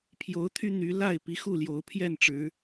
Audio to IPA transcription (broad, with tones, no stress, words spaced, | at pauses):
pʰjo˨˦ʊ̯t̪ʰy˦ n̪y˨˦ la˥˨ɪ̯pi˨˦ xu˥˨ljo˨˦ʊ̯pʰjɛ˥˨nʈ͡ʂɻ̩˨˦